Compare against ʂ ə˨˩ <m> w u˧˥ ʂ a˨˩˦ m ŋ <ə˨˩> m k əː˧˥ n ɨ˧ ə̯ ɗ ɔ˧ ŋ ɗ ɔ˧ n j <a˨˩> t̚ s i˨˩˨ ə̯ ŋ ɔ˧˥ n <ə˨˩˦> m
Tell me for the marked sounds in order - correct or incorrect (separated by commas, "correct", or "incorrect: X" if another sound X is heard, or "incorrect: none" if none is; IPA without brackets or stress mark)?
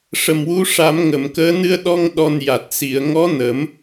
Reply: correct, incorrect: ə˨˩˨, correct, correct